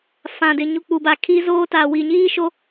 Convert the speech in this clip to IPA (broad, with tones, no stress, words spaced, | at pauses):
fã˨dɪ˨ ɲu˨ k͡pu˨ba˨ kʰiː˦zoː˦taː˨ wi˨ɲiː˦ʃo˦